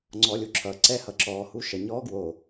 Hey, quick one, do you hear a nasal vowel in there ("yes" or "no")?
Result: no